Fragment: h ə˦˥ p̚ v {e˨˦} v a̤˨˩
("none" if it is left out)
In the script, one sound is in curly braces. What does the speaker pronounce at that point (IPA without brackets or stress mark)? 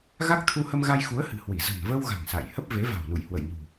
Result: e˨˦